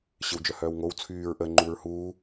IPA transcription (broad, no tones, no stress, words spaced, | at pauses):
ɕɪwd͡ʒœhœːwŋow t͡sʰyːɹ ʔə ŋ͡ǃuːɹhuː